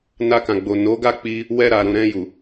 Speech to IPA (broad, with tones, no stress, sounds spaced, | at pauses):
n a˧ k ã˨ ɡ͡b o˨ n o˨˦ ɡ a˦˨ k͡p i˧ | w ɛ˧ ɾ a˨ ɾ ũ˨ ɾ ɛ̃˧ j u˨